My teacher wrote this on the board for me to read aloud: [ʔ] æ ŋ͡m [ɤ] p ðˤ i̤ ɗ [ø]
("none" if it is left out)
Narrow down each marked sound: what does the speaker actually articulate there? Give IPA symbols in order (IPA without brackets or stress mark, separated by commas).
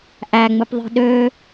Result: ʔ, ɯ, ø